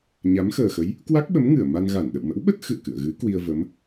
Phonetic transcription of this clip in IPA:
ɲ a˨˦ m x əː˨˩ x ə˨˦ j | k w a˦˥ k̚ ɓ ə˨˦ m ŋ ɨ˧˩ ə̯ m a˧ n ɣ a˧˩ n ɗ ə̰˧˨ w m ə̰˧˥ w ɓ ə˦˥ t̚ x ɨ̰˧˨ ə̯ k ɨ̰˧˨ ə̯ ɣ ɨ˨˦ k w i˧ ə̯ v ə˨˦ m

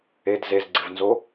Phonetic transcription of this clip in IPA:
e d z e z ɡ͡ǀ ɪ v n z o

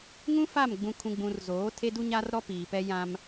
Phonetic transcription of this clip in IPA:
ŋ ũ˦ f a˦˨ m ɡ͡b ũ˨ kʰ ũ˨ ɡ͡b ũ˨ r z oː˨˦ tʰ e˦ d u˦ ɲ a˦ r ɾ ɔ˦ p iː˨ p ɛ˦ j ã˦ m

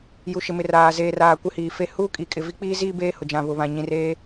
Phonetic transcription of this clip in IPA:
j u˨ ʃ ɪ˨ m ɪ˨ r aː˨ z eː˨ r aː˨ kʷ ɪ˦ h iː˨ f e˦ h uː˦ kʼ i˨ kʼ ɪ˨ v i˦ k͡p iː˦ z iː˦ b eː˦ h ʊ˨ d͡ʒ ã˨ β ʊ˨ β ã˨ ɲ ĩ˨ r eː˦

